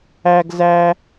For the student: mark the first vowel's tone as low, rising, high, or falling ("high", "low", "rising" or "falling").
high